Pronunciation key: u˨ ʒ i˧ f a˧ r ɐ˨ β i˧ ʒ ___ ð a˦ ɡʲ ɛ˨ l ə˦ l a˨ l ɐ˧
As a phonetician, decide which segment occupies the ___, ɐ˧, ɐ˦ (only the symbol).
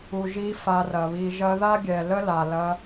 ɐ˧